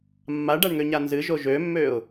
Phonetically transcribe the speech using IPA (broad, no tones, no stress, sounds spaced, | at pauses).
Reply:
mː a ɖ a ɳ ŋ ø ɲ a n z ɨ ʒ o ʒ ø mː ø ʊ̯